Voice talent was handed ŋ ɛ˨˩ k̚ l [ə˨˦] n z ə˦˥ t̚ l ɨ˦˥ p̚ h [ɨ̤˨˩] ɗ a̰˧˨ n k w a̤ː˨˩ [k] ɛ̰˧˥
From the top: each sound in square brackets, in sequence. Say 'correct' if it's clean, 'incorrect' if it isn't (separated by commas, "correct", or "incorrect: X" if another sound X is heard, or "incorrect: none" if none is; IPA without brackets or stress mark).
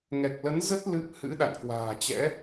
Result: correct, incorrect: ɨ̰˧˥, incorrect: t͡ɕ